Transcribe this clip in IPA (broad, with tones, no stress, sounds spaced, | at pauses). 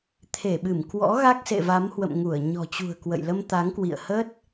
t̪ʰ e˧˩ ɓ ɨ˧˩ m k w ɔ̰˧˥ ɣ a˦˥ k̚ s ḛ˧˨ v a˨˦ m h w ə̰˧˨ m ŋ u˧˩ ə̯ ɲ ɔ̤˨˩ t͡ɕ ṳ˨˩ ə̯ k w ə̰˧˨ j l ə˧ m t̪ a˨˦ ŋ k w ḭ˧˨ ə̯ h ə˦˥ t̚